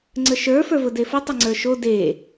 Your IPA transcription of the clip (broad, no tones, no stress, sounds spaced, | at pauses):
ŋ͡ǀ ə ʃ ə˞ f ə˞ v ʊ d e f o tˤ ʊ ŋ͡ǀ ə˞ ʃ o d e